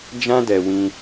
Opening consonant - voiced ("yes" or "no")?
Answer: yes